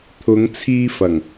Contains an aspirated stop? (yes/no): yes